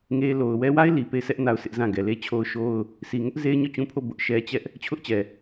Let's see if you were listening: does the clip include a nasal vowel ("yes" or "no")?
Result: yes